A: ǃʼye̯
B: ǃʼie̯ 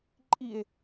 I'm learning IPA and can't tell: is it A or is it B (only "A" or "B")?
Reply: B